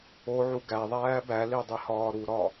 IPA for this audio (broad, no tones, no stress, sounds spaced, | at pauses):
o ʕ u ɡ æ ðˤ æː b æ l i dˤ i h ɒː ɾ u ɾ ɒ